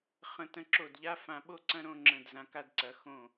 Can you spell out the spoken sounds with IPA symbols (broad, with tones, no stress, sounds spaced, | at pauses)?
χ ə̃˧ t ə̃˧ ǁ o˧˩ d ʎ a˧ f ã˧ ɓ o˥˧ ǀ ɐ̃˥˧ ɾ õ˥˧ ŋ͡ǁ ə̃˧˩ d z ã˩˧ k a˧ d ǀ ɐ˩˧ x õ˧˩